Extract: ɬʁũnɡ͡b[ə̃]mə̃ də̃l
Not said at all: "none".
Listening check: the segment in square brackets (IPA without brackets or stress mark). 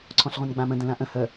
ã